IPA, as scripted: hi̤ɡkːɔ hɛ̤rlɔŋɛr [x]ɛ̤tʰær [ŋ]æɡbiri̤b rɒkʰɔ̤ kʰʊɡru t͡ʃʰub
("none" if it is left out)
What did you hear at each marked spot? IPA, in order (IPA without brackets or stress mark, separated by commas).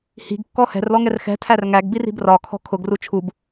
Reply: x, ŋ